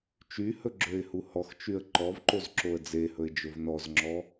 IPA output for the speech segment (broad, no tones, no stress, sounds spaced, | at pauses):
t͡ʃ y h ɵ ɡ͡ǁ ø ɪ̯ h u h ɔ x t͡ʃ y ə̯ ǃ ɔ v ǃ o z ǁ o ə̯ d͡z e h ɵ ɪ̯ d͡ʒ ɵ v n ɔ z ŋ͡ǁ ɔ